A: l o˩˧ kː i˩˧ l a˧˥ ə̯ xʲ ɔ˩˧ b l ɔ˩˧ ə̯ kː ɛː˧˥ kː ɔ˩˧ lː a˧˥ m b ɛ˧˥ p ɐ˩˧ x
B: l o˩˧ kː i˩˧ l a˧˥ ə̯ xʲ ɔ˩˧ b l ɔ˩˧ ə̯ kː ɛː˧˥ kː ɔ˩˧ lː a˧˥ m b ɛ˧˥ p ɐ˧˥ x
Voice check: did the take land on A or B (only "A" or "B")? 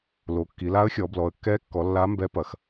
A